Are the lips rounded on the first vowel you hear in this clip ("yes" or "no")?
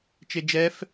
no